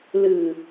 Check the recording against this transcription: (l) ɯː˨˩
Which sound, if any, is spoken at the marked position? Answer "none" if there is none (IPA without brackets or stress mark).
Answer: l